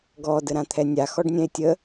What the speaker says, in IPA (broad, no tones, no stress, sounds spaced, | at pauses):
ɡ ɔ d ə ɾ ã t̪ʰ ɛ nʲ a x ɔ ɖ nʲ ɛ̃ e̯ tʲ ə